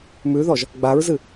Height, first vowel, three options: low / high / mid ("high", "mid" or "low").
high